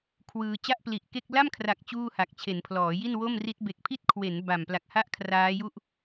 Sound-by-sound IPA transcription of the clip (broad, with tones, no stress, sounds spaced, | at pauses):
kʰ w ɯː˧ t͡ɕ a˥˩ ʔ p l i˨˩ ʔ k e˥˩ k̚ l a˥˩ m kʰ r a˨˩ k̚ t͡ɕ uː˥˩ h a˨˩ k̚ t͡ɕʰ e˩˦ n pʰ l ɔː˩˦ j i˥˩ n w o˥˩ m r i˦˥ t̚ b e˨˩ k̚ pʰ i˥˩ t̚ kʰ w e˩˦ n b a˨˩ m p l a˨˩ k̚ h a˥˩ ʔ kʰ r aː˦˥ j u˥˩ ʔ